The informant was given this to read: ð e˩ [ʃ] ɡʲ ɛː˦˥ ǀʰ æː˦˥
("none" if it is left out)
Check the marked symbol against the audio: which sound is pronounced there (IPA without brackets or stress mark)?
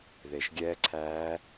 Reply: ʃ